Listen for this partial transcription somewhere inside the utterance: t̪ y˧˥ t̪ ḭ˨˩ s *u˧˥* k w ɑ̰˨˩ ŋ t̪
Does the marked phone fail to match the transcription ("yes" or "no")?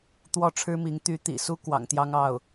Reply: yes